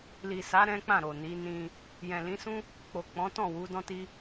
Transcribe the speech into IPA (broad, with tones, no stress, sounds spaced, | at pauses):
l i˨ s a˨˦ ɾ ɛ̃˦ k͡p ã˦˨ ɾ o˨ n i˨˦ n ĩ˧ | j ɛ̃˨ l ĩ˨˦ s ũ˦ | k͡p o˨ k͡p ɔ̃˨˦ t ɔ̃˦˨ w u˨˦ d ɔ̃˦ t i˦